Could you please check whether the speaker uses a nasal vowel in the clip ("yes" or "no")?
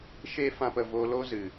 yes